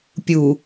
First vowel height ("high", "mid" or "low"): high